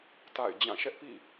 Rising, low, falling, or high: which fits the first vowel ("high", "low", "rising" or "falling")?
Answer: falling